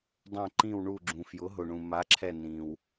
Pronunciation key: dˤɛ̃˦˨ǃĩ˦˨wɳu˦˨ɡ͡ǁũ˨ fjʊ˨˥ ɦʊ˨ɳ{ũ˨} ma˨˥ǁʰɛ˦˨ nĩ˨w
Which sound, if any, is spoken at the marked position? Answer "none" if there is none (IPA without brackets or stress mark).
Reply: ũ˨